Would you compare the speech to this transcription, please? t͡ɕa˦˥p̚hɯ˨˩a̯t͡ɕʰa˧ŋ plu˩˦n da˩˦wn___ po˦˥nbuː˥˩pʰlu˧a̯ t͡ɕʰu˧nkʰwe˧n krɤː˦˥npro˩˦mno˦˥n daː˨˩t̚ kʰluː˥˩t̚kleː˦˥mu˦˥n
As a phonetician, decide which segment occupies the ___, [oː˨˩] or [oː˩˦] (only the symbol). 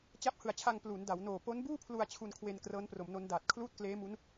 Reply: oː˨˩